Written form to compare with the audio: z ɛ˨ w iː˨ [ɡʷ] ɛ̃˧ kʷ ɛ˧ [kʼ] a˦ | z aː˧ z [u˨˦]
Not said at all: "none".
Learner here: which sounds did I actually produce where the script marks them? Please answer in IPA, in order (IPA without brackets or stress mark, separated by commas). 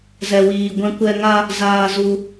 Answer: ɡʷ, ŋ, u˧